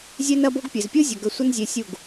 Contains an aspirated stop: no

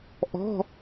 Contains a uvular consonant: no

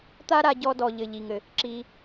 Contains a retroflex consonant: no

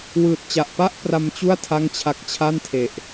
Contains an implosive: no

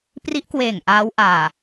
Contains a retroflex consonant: no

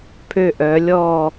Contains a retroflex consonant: no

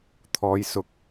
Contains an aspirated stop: yes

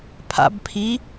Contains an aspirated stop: yes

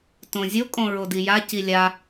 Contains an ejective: yes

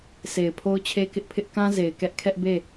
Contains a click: no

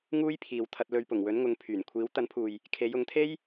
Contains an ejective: no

